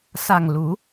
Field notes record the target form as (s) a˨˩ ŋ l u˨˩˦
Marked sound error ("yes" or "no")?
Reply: no